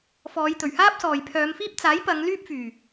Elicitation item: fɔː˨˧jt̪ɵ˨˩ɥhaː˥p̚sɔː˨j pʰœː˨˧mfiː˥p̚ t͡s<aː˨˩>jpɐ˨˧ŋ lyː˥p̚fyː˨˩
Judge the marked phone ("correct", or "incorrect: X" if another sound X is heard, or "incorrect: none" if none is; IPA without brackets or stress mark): incorrect: aː˨˥